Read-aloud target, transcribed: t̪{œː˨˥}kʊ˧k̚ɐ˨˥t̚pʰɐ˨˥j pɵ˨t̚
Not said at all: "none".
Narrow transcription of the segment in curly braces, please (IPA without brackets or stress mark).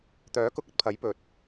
œː˨˥